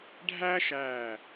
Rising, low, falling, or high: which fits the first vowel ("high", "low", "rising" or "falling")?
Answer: high